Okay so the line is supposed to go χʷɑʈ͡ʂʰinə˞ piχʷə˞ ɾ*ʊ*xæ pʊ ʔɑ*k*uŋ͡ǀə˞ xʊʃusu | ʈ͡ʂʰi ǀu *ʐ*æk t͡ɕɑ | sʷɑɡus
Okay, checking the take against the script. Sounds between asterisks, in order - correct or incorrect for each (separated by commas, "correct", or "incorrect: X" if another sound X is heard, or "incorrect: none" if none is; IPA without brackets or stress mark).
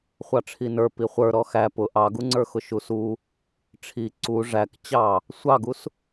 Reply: incorrect: ɔ, incorrect: ɡ, correct